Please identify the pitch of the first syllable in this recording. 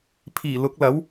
low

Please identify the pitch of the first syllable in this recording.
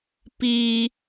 high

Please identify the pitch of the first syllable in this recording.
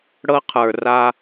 high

